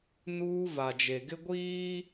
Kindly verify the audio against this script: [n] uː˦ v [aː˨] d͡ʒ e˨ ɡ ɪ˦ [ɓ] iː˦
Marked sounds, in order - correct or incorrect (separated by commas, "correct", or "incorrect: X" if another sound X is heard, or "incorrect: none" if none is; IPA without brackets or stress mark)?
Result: correct, incorrect: a˨, incorrect: ɡʷ